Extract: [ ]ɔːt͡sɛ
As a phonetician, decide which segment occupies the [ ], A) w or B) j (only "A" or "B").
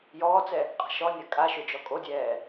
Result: B